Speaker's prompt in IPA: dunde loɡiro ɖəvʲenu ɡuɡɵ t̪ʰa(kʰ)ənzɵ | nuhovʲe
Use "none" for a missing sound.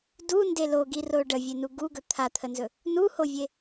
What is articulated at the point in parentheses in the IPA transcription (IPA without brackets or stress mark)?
t̪ʰ